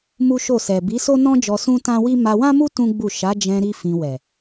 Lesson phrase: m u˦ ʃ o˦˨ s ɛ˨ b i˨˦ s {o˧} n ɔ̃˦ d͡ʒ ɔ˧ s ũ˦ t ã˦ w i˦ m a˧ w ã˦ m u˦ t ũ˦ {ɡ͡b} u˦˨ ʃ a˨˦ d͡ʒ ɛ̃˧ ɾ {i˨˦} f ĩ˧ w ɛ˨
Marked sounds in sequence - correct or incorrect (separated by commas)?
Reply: incorrect, correct, incorrect